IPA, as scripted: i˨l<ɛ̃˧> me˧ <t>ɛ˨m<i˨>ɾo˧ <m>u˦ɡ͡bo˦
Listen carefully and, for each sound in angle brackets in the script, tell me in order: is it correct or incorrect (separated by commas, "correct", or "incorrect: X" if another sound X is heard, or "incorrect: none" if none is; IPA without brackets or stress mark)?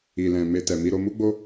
incorrect: ɛ̃˨, correct, incorrect: i˧, correct